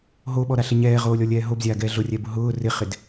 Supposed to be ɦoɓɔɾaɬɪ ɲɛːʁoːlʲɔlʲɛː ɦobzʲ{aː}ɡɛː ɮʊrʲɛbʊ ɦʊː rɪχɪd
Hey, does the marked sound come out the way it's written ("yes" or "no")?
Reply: yes